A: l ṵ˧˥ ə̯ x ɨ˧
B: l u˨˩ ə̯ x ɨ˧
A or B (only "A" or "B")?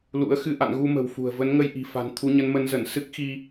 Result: A